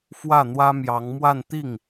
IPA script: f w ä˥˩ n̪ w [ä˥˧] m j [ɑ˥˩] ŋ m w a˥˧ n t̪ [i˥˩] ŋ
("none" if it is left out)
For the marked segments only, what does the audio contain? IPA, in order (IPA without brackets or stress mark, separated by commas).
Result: ä˥, ɑ˧˥, i˥˩